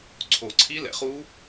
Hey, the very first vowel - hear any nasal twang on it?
no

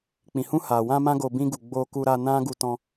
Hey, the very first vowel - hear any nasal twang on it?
yes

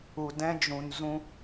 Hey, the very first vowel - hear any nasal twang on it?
no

